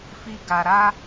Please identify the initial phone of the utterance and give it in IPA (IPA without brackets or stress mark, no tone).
f